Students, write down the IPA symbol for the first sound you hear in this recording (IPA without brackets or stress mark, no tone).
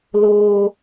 l